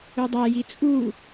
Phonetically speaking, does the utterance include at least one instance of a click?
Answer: no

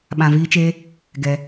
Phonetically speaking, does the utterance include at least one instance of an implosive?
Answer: yes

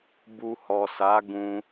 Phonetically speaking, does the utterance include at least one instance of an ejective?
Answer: no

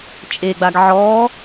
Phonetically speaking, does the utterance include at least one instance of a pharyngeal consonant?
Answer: yes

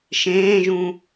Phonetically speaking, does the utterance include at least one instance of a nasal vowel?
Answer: yes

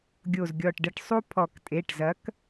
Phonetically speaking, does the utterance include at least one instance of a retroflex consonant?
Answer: yes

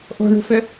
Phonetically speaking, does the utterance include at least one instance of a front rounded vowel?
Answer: yes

